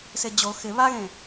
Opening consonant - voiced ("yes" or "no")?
no